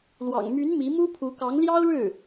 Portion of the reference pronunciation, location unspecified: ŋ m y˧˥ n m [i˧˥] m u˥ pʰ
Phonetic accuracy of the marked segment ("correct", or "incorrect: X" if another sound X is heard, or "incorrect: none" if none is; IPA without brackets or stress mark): correct